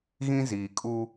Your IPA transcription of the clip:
ɣĩ˦ziː˨kʼu˦

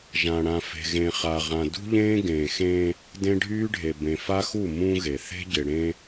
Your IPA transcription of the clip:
ʒã˨ɽã˨ fe̤˨ɣẽ˨χa˨ʁã˨ dṳ˦ʎẽː˦ ɡẽː˨xẽː˦ | dẽ˦ɖʱyː˦ɖʱe˨ bẽ˨fa˦xu˦˨ mũ˦ɣe˨ θe̤˦ɟɪ˨ɽẽ˦

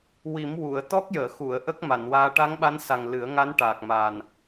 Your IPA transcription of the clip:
wi˨˩˦m wu˨˩˨ə̯ t̪ɔ˦˥k̚jəː˨˩˨xu˨˩˨ə̯ ʔə˦˥k̚ma˨˩˨nwaː˧ ʈa˧˥ŋɓa˧˥nsa˨˩ŋ lɨ˨˩˦ə̯ŋa˧˥nʈaː˨˩k̚ma˨˩n

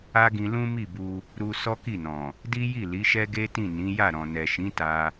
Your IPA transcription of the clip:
a˦ɡĩ˧ lũ˦mi˦˨bu˧ | ɾu˧ sɔ˦ki˦˨nɔ̃˨ | di˦ji˦˨ li˨˦ʃɛ˦ɡe˦tĩ˦˨ nĩ˨˦ja˦˨ɾɔ̃˨ nɛ˨ʃĩ˨˦ ta˧

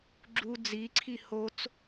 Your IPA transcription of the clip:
ɡ͡ǁu d͡ziǀʰi hot͡s

